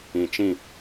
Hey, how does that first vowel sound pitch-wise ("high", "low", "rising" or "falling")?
low